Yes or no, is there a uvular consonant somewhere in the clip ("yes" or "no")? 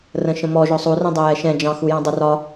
no